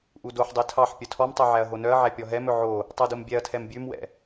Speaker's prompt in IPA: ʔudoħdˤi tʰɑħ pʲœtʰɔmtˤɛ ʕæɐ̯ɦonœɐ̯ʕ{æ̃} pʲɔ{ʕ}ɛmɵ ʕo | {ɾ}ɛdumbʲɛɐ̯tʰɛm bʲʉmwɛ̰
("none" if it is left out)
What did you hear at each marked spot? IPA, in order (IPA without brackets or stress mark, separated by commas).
æ, ɦ, tˤ